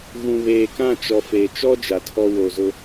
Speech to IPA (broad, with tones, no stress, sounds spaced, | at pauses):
ɣ ũ˨ β eː˨ k ã˦˨ t͡ʃ ɔ˨ f e˨ t͡ʃ ɔ˦ d͡ʒ a˨ tʰ ɔ˦ w o˨ z ʊ˦